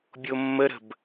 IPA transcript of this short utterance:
bʲomːəɾə̤b

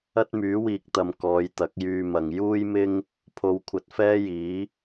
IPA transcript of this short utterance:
ɐ˥t̚myː˨˥wiː˨k̚t̪ɐ˨m kɔː˨˧jt̪ɐ˨˥k̚jyː˧mɐ˨ŋ juː˥jmɪ˥ŋ | pʰo˨˧wkʷʰɐ˨t̚fɛː˥jiː˨˥

